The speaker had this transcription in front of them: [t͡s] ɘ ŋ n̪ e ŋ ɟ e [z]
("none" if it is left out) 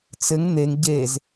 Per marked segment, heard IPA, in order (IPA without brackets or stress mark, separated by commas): t͡s, z